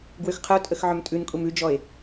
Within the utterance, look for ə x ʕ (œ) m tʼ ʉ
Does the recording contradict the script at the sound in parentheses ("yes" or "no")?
no